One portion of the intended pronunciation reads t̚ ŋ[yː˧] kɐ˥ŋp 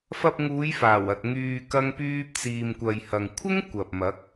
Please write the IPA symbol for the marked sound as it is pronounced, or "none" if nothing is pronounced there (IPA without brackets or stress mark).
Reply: yː˧